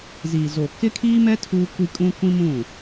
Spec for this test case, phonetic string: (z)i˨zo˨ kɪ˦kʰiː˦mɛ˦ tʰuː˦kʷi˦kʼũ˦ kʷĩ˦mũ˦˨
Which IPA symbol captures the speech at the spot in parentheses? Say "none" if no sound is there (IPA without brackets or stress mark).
z